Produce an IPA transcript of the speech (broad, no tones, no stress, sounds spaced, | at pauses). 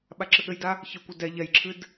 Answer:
ɓ a ǁ ɘ ɠ ɘ j d a | ç ɘ kʷ ɘ d ɛ ʎ ɛ j ǁʰ ɨ d